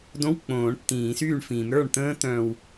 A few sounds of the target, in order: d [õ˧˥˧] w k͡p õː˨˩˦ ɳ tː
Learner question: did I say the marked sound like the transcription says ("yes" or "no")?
yes